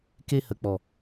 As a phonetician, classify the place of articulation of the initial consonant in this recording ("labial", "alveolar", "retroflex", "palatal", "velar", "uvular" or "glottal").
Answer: velar